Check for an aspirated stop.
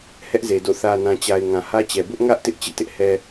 absent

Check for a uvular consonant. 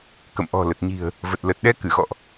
absent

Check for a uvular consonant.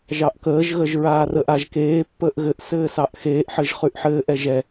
present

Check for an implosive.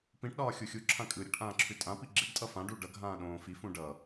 present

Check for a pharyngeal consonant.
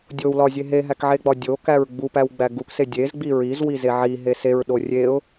present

